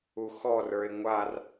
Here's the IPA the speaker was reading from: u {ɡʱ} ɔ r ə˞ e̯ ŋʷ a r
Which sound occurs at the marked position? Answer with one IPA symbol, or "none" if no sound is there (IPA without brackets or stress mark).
x